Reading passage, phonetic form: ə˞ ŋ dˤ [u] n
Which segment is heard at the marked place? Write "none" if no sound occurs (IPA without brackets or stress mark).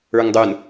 u